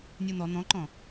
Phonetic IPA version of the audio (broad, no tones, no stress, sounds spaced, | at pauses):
nʲ u n̪ ɔ n̪ ɔ̃ ǃ ɔ̃